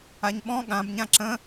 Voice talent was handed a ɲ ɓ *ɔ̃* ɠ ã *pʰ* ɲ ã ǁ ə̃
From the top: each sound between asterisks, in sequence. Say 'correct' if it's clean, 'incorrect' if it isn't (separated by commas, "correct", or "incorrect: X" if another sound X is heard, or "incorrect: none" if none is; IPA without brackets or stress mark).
correct, incorrect: b